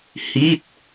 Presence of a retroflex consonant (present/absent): absent